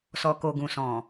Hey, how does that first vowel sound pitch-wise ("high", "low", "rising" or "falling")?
low